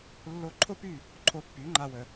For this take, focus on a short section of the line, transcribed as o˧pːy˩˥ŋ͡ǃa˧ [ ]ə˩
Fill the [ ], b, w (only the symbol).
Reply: w